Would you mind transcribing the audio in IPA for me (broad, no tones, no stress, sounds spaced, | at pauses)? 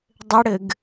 dˤ ɘ ɽ ɘ ɡ